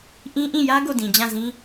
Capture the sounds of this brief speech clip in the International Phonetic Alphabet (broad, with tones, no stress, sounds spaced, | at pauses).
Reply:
ʔ ĩ˦ ʔ ĩ˦˨ j ä˦ ɡ o˦˨ d ĩ˨ d͡ʑ ã˦˨ z ĩ˦